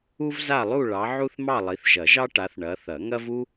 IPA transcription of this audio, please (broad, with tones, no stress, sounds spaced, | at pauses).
u˥ v z a˥˧ lˠ u˥˧ ɭ ɑ˨˦ ʕ u˥ θ m ɑ˥˧ lˠ i˨˦ θ ʒ ɐ˨˩˦ ʒ ɑ˥ ʈ a˨˦ θ ɳ ɐ˨˦ θ ɐ˨˩˦ ŋ ɐ˥ v u˥